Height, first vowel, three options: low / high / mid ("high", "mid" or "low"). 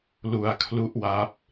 high